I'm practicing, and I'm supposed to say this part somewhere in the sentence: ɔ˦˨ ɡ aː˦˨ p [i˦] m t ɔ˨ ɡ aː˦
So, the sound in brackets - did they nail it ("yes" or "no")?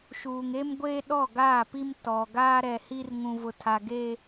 yes